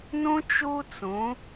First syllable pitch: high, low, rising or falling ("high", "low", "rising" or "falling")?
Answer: high